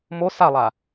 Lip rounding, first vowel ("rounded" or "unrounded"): rounded